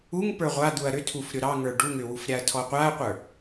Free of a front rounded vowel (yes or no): no